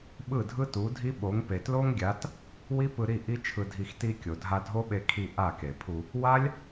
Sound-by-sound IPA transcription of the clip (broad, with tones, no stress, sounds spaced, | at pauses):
ɓ ɯ˦˨ dʱ ɯ˦ t u˨˦ dʱ i˦ ɓ o˨˦ ŋ p e˨ t l o˦ ŋ ɡʲ a˨˦ t | w i˦ p ɯ˧ ɾ i˦˨ ʔ i˦ t͡ʃʰ ɯ˧ dʱ i˧ x t i˧ kʲ o˨ dʱ a˧ dʱ o˦ ɓ e˧ kʰ i˧ ʔ a˦˨ k e˨ pʰ u˧ | w a˦ lʲ